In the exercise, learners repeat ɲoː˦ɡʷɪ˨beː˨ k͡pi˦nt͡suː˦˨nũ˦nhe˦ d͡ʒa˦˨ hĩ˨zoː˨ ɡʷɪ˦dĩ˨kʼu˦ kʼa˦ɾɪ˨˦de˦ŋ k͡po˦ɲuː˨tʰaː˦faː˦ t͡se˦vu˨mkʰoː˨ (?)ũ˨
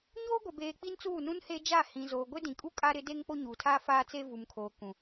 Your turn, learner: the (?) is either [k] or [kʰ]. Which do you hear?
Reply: k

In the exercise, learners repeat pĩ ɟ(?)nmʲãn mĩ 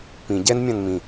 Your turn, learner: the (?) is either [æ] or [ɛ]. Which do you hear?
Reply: ɛ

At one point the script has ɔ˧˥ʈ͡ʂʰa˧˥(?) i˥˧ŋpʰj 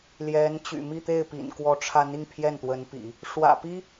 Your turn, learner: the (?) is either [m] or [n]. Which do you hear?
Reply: n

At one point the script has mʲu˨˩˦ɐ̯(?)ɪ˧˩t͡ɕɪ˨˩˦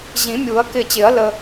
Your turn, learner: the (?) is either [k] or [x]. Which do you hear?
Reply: k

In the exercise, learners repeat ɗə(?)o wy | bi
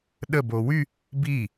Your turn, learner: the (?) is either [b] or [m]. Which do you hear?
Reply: b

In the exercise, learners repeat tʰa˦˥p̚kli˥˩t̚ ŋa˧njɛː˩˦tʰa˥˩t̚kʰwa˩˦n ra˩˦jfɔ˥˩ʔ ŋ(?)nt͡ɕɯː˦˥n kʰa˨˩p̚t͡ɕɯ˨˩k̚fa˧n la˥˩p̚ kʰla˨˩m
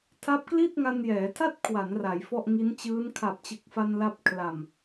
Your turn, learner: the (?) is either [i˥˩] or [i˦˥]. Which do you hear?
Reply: i˦˥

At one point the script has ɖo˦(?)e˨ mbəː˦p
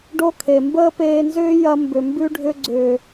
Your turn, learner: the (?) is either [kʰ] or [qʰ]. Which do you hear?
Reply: kʰ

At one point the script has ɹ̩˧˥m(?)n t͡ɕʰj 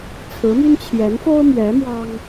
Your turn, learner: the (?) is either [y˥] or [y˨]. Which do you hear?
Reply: y˥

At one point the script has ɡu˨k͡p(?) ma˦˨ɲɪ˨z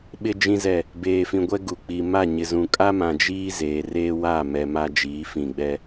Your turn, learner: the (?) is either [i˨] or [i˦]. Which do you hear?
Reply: i˨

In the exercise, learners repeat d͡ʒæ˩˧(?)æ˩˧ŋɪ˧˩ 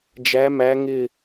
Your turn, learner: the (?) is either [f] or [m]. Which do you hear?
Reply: m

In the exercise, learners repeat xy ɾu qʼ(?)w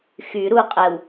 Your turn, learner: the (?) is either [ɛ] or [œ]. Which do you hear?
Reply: ɛ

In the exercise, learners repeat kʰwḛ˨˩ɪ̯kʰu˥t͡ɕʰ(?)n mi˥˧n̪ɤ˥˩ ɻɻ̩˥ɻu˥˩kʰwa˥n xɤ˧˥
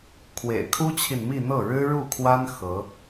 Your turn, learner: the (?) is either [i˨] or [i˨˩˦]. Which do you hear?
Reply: i˨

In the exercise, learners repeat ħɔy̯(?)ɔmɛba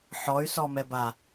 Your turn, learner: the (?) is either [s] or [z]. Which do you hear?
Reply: s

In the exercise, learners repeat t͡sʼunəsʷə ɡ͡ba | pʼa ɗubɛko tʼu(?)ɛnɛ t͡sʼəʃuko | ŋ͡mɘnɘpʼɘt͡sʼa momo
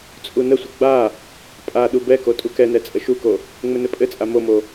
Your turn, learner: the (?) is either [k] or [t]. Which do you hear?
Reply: k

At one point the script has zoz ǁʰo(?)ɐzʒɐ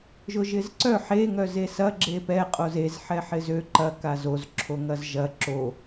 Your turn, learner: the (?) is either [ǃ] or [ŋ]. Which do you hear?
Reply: ŋ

